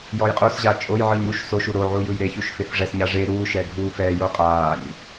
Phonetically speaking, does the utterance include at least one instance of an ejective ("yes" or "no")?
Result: yes